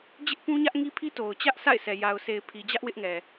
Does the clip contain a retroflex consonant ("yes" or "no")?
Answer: no